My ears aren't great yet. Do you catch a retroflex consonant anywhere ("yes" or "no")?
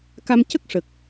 yes